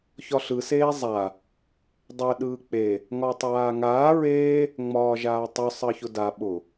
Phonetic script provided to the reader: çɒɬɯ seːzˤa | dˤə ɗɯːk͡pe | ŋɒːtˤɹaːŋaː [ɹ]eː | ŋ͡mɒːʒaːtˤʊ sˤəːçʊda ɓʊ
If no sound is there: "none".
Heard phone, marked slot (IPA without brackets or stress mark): ɹ